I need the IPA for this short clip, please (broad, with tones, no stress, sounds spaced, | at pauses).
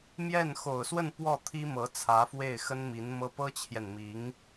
m j ɛ˥˩ n x o˨˩ ʊ̯ s w ə˥˧ n p w ɔ˥˩ t̪ʰ i˥ m ɤ˧˥ t͡sʰ ä˧˥ f w e˥˩ ɪ̯ x ə˥ n m i˧˥ n m ɤ˥ p ɤ˥ t͡ɕʰ j ɛ˨ n m i˧˥ ŋ